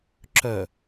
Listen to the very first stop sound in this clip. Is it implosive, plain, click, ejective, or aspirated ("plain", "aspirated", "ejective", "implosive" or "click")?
click